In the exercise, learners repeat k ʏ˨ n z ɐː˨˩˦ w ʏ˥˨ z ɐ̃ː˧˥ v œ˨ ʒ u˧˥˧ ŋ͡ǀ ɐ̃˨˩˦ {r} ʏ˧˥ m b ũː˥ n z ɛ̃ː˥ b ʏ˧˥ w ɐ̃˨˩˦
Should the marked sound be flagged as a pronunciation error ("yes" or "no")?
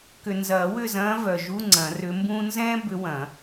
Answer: no